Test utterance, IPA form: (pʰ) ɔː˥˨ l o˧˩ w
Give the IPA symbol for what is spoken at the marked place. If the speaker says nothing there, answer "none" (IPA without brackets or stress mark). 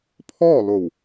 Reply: pʰ